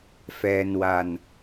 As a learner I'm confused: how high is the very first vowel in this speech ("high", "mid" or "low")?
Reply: mid